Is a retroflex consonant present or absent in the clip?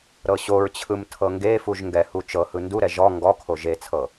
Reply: absent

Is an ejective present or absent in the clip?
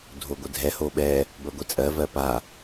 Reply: present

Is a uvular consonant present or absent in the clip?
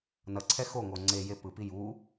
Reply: absent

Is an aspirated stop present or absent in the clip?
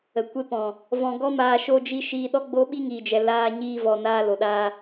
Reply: absent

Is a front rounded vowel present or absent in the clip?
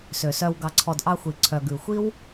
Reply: present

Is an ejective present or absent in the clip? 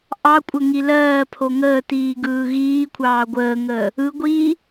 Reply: present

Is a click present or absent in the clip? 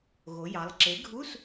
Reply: present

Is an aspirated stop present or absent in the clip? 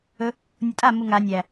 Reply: absent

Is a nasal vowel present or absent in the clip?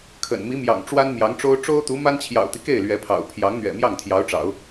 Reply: absent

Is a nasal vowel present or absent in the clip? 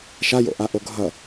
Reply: absent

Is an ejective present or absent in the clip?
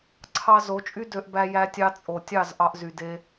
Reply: present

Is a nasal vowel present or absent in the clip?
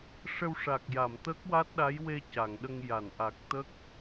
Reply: absent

